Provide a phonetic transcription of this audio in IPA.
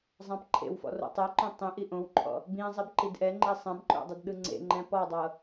zˤ ã p ǃʰ ḛ w f ɔ̰ r o̰ tˤ e ǃ õ tˤ ĩ ʔ i ʔ õ w ǃʰ ɔ̰ | b ĩ zˤ i b ǃ i d ʔ ɛ ŋ͡ǃ e sˤ ɛ̃ b ǃ o̰ dˤ ɯ d ɗ ɯ ŋ͡ǀ ḛ ŋ͡ǃ ɛ̃ p ɔ dˤ ɤ

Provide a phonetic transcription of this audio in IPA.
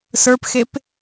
s ə˞ p x e p

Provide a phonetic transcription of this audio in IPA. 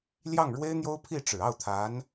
l j ɑ˥˩ ŋ ɻ w e˥ ɪ̯ n̪ j o˥ ʊ̯ pʰ i˥˩ ʈ͡ʂ ɻ̩˨˩ ɑ˥˩ ʊ̯ t̪ʰ a˧˥ n

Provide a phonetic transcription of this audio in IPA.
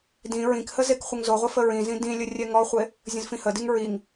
d ĩ ɹ ĩ k h ə z e k χʷ ə ŋ z o ʁʷ ə f ə ɹ ĩ z ĩ d ĩ lʲ ə rʲ ɛ ŋ ɔ χʷ e | zʲ ə̃ z f ĩ h ə d i ŋ ɹ i ŋ

